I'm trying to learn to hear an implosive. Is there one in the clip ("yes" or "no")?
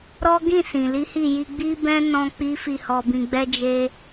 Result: no